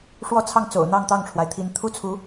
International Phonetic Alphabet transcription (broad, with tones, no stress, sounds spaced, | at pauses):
ʂ w ɔ˥˧ t͡sʰ ɑ˥˩ ŋ t͡s o̰˨˩ ʊ̯ n̪ ɑ˥˧ ŋ t̪ ɑ˥˩ ŋ ʈ͡ʂʰ w a˩ ɪ̯ t̪ʰ i˧˥ n t̪ʰ u˥ t͡sʰ u˧˥